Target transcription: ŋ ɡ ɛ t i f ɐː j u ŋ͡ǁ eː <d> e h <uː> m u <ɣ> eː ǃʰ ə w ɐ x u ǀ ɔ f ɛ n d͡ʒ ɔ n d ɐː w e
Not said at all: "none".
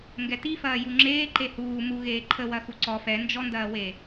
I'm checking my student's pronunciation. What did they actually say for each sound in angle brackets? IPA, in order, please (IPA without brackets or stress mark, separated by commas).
ǃ, uː, ɣ